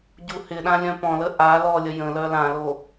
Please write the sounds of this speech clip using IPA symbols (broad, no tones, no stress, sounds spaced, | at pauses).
ɟ u h ɪ ɗ ã lʲ œ̃ p ɔ̃ l ə ʔ a l ɔ lʲ ə j ə̃ l œ l ã l o